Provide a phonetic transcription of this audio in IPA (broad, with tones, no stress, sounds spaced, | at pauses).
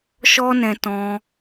ʃ ɔ˦ n ɛ̃˧ t ɔ̃˧